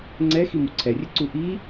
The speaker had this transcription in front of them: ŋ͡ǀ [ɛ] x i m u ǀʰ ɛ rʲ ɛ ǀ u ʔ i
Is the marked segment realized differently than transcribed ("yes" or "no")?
no